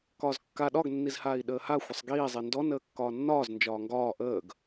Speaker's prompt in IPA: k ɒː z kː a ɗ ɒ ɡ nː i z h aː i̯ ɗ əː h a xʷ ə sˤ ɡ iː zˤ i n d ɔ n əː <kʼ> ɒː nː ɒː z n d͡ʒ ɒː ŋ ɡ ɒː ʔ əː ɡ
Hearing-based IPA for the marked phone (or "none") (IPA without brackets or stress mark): kː